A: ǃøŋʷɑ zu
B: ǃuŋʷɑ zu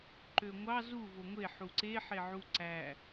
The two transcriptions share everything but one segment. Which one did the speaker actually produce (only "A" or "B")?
A